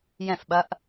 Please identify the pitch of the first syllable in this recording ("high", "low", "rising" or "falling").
falling